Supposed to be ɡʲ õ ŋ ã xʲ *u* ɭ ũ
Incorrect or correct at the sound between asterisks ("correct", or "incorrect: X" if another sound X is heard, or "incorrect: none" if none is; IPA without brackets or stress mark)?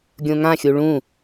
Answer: correct